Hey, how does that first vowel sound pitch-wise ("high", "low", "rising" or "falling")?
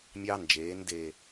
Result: high